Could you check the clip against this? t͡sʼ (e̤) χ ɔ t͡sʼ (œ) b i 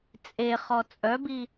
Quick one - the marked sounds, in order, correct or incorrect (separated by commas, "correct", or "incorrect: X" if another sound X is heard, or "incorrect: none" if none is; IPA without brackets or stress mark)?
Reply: incorrect: e, correct